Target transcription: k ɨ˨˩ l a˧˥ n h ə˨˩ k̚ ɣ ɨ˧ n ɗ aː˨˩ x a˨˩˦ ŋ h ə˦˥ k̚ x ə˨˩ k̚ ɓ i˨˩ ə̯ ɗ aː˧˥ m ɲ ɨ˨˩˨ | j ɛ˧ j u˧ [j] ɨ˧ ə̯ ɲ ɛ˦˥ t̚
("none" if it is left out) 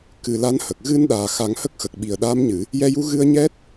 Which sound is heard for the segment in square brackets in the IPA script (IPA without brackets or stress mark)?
ɣ